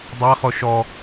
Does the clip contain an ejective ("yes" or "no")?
no